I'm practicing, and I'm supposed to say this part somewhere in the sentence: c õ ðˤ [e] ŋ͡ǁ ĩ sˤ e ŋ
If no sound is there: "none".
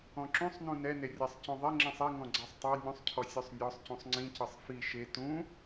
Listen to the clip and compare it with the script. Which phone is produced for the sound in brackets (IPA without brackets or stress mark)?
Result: e